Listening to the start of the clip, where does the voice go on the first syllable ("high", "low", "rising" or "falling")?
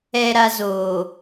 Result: low